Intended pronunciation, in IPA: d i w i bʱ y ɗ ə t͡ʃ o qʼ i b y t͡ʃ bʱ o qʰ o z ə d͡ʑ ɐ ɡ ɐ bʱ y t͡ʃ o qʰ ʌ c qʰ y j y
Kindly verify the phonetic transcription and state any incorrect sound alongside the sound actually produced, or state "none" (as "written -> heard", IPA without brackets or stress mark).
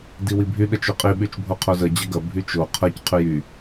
b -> ɓ